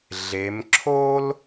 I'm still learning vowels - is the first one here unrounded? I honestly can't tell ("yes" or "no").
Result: yes